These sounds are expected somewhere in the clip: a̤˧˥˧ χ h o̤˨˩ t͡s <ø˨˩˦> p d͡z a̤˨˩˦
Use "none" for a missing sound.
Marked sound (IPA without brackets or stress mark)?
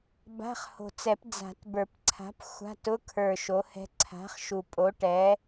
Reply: ɛ˨˩˦